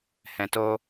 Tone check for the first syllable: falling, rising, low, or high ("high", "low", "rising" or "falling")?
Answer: low